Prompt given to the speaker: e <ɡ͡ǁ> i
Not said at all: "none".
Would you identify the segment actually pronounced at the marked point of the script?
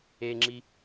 ŋ͡ǁ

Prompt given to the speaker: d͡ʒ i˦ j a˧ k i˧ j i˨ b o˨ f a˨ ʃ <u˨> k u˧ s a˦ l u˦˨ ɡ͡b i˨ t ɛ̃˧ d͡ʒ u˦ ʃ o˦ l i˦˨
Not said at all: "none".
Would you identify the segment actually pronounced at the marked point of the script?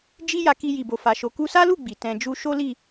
o˨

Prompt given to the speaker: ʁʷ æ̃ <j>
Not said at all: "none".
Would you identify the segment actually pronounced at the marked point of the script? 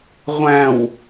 w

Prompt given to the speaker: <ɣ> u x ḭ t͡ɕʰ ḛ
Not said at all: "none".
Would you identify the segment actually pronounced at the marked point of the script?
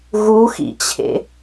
ɣ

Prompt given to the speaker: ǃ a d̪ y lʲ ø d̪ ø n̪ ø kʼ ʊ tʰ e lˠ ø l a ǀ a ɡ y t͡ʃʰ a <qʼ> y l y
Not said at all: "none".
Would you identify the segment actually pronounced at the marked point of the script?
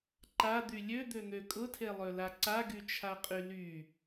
qʼ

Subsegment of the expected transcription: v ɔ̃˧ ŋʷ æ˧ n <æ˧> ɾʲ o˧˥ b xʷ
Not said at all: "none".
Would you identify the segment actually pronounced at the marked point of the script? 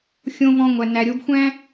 æ˧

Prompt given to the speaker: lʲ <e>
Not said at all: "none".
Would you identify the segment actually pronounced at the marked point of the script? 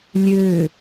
ø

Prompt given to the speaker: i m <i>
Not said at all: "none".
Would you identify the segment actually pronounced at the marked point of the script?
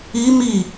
i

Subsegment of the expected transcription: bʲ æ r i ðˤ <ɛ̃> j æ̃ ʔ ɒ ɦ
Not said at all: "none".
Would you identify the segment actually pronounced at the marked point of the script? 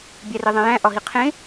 ẽ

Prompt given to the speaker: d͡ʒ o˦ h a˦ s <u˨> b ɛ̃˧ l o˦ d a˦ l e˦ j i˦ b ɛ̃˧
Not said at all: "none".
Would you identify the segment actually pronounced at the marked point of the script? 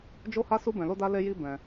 u˦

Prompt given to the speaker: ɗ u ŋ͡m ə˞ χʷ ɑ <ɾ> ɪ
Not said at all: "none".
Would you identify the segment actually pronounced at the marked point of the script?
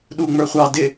d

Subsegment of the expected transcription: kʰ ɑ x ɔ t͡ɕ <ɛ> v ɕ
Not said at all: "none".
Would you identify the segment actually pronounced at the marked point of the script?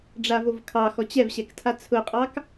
ɛ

